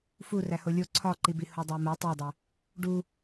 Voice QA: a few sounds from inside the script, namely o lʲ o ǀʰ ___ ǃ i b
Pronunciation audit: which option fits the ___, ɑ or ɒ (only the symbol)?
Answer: ɒ